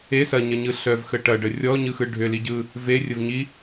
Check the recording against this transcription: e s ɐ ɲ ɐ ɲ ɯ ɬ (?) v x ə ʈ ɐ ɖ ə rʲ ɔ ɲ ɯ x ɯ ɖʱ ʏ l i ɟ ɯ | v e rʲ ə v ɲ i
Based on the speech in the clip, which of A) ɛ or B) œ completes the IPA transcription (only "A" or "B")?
B